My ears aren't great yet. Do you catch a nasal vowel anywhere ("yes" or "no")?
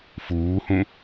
yes